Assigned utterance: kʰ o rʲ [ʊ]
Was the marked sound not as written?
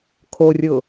no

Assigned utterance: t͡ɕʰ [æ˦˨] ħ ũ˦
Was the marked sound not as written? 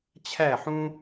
no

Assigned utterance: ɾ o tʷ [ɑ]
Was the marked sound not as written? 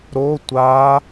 yes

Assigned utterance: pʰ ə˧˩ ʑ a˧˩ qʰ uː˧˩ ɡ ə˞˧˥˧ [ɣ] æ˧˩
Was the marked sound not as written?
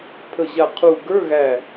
no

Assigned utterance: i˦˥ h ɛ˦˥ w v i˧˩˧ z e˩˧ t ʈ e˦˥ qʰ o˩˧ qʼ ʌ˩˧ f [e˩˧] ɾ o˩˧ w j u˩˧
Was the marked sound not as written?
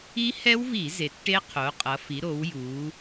yes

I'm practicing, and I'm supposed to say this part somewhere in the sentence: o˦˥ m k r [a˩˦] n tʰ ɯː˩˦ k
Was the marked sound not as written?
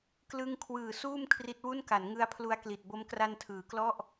yes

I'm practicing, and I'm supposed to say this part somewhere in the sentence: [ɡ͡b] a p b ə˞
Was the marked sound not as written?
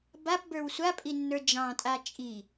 yes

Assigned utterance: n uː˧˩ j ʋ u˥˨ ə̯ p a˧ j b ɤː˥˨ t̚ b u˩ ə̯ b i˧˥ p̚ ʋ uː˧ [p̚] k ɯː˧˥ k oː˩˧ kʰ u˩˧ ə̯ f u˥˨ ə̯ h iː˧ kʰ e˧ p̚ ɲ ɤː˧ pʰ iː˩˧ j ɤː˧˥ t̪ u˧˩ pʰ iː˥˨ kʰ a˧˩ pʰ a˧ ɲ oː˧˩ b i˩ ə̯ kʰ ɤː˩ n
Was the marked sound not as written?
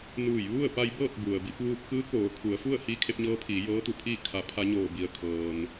no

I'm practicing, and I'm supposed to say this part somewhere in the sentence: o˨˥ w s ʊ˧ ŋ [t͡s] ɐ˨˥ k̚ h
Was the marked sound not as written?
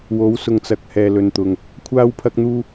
no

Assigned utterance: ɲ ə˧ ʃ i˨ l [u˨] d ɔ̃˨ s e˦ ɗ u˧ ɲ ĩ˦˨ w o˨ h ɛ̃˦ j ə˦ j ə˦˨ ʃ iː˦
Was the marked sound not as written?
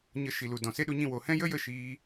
no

